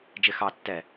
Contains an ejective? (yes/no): no